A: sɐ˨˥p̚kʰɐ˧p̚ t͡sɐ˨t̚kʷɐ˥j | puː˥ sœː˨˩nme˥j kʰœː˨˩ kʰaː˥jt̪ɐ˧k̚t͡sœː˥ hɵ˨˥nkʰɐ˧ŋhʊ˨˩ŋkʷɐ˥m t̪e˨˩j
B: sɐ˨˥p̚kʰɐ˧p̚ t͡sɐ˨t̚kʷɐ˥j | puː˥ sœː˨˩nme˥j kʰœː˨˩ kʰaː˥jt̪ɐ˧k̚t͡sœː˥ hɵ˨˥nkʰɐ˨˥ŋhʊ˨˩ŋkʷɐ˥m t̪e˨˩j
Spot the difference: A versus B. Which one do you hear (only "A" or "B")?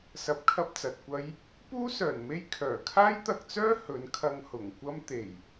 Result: A